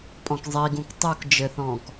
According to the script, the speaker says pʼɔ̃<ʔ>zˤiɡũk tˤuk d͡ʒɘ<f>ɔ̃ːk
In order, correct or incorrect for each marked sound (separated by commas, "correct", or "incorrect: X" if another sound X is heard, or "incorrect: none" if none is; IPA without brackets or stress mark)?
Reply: incorrect: k, incorrect: θ